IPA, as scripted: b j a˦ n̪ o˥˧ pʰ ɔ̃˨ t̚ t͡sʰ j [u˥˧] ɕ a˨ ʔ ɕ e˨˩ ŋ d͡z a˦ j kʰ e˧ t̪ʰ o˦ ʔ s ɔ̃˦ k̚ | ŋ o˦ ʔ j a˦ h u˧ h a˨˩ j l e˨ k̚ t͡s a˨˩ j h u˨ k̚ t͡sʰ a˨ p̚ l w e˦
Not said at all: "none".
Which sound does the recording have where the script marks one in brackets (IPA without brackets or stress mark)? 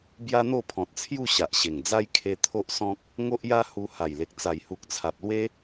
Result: u˥˧